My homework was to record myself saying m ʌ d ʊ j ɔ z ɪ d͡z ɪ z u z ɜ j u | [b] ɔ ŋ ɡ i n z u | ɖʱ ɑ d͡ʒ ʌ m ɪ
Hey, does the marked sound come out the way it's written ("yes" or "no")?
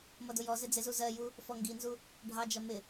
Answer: no